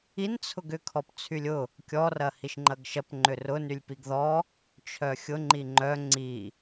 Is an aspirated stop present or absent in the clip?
present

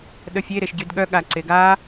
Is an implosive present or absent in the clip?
present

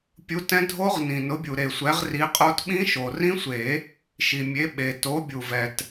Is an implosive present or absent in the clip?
present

